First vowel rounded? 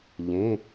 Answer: no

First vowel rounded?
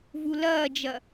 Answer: yes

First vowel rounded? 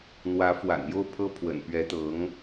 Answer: no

